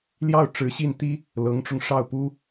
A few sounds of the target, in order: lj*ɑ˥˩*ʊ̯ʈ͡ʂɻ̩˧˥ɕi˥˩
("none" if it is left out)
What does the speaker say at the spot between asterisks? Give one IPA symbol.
ɑ˥˩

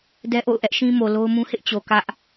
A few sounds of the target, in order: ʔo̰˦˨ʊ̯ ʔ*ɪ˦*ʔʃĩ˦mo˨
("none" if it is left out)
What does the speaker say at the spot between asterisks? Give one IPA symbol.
ɛ˦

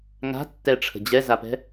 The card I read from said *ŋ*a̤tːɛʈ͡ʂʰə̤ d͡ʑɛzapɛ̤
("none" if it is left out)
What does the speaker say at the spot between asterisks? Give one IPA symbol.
ŋ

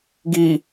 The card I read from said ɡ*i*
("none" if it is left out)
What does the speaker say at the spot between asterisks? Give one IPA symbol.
i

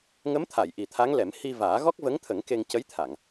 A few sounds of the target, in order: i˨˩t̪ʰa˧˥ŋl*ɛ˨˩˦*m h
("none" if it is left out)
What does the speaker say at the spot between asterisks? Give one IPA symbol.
ɛ˨˩˦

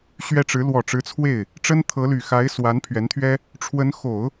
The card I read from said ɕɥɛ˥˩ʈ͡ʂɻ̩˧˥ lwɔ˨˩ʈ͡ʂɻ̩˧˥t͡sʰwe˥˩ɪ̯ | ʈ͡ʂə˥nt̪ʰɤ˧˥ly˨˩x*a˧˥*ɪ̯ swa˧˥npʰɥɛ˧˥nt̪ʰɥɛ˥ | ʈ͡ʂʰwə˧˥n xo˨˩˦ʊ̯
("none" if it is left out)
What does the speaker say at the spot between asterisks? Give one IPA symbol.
a˧˥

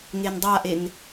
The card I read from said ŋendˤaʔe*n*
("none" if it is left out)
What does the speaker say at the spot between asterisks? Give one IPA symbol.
n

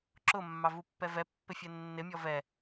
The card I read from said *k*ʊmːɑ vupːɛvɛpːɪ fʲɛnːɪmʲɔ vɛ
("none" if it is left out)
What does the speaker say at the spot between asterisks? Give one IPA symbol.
ǁ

